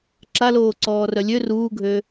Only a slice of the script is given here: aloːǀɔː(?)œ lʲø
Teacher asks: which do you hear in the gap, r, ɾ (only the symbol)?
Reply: r